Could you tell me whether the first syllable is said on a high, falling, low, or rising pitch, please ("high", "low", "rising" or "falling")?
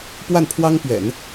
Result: falling